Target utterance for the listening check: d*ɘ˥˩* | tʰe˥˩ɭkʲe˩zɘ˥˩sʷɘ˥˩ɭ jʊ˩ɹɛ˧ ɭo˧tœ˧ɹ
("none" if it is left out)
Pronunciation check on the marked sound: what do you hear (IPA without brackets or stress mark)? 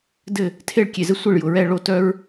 ɘ˥˩